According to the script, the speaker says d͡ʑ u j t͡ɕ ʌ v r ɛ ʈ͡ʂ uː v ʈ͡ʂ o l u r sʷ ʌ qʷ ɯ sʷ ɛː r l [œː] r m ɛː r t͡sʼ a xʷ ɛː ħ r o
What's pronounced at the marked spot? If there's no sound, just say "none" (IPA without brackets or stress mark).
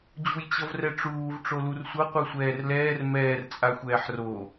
ɛː